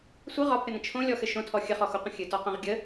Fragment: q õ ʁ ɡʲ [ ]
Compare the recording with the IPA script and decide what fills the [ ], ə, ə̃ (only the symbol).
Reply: ə